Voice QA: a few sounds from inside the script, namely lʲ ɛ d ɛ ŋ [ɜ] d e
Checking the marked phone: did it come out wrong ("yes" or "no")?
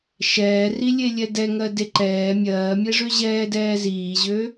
no